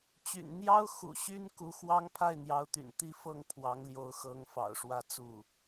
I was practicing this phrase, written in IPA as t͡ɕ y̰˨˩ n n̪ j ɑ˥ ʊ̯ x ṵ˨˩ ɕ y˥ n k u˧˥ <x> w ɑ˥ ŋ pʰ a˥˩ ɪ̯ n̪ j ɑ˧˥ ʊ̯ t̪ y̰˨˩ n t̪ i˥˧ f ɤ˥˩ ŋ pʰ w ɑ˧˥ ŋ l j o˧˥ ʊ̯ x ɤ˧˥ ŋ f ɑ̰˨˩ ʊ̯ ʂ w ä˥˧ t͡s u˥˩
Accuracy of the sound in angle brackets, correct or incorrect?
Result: correct